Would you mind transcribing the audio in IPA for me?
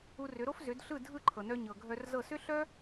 u˧ r ʏ˩˥ ɾ o˥ f z ʏ˩˥ d ɬ ɯ˥˩ dʱ ɯ˥˩ ǃʰ ɤ˩ n œ˧ ɲ ɤ˩ ɡʱ œ˧ r z ɤ˥˩ s ʏ˥ ɬ œ˥

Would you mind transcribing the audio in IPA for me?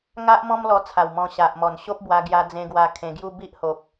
ŋ a˦ ʔ m ɔ̃˦ m l ɔ˧ t͡sʰ a˨˩ w m ɔ̃˧ ɕ a˨ ʔ m ɔ˨˩ n ɕ o˦ p̚ b w a˧ ɡ j a˧ d͡z ẽ˧ ɡ w a˧ kʰ ẽ˧ ɡ j u˦ b i˦ ʔ h o˨ p̚

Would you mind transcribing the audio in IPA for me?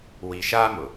w i˨ ʃ aː˦ m ʊ˨

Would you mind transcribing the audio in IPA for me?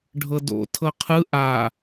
ɖʱ ɤ d o̰ tʰ ɤ qʰ ɯ ʔ a

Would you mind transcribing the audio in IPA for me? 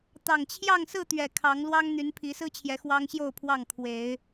t̪ ɑ˨˩ ŋ t͡ɕʰ j ɑ˥˨ ŋ s ɹ̩˥˨ t̪ ɥ ɛ˨˩ kʰ ɑ˨˦ ŋ l w ɑ˦ ŋ n̪ y˨˦ n pʰ i˨˦ s ɹ̩˦ t͡ɕʰ j ɛ˨˦ x w ɑ˦ ŋ ɕ j o˥˨ ʊ̯ pʰ w ɑ˥˨ ŋ kʰ w e˨˦ ɪ̯

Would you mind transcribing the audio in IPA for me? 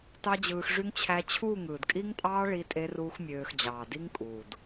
t ɑ˦ d͡ʑ ɯː˧ x ʐ y˦ ŋ t͡ɕʰ æ˧ t͡ɕʰ uː˦˨ ŋ ɯː˨ d kʼ i˦ ŋ tʼ ɑː˦ ɭ i˦ tʼ e˦ r uː˦ x mʲ øː˧ x d͡ʑ ɑː˨ d i˦ ŋ kʼ uː˨ d

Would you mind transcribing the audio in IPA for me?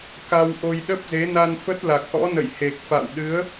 k a˧ w ʔ o˧ j ɗ ə˦˥ p̚ z e˨˦ n a˧ n f ə˦˥ t̚ l a˨˩ k̚ ʔ ɔ̰˧˥ n ə̰˧˨ j h e˨˩ k̚ f a̰˧˨ w ɗ ɨ˨˦ ə̯

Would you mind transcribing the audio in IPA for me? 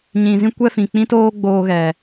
ɲ ĩ˨ z ĩ˧ kʷ ɛ˦ f ĩ˨ k͡p ĩ˦ t oː˦ ɡ͡b oː˧ ɣ ɛ˨

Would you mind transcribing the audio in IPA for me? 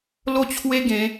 l o˥˧ t͡ɕʰ w e˦ ɡ ẽ˨˦

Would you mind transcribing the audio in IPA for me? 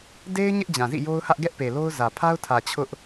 d e˦ ɪ̯ ɲ ɪ˦ ʔ d͡ʑ ã˨ z ḭ˦˨ j o˦ ʊ̯ h ä˦ ʔ ɡ ɛ˦ ʔ p e˨ l o˦ ʊ̯ z ä˨ pʰ a˦ ʊ̯ tʰ ä˨ t͡ɕʰ ʊ˦ ʔ

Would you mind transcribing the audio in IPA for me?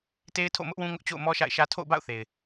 t e˦ ɪ̯ tʰ o̰˦˨ m ʊ˦ ʔ w ũ˦ ŋ ʊ˦ ʔ t͡ɕ o̰˦˨ ʊ̯ m ɔ˦ ʃ a̰˦˨ ɪ̯ ʃ ä˦ tʰ o̰˦˨ ʊ̯ b a̰˦˨ ʊ̯ θ e˨ ɪ̯

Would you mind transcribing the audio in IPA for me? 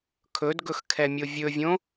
kʰ ɵ d ɡ ɵ x kʰ ɛ mʲ o vʲ ɵ vʲ õ

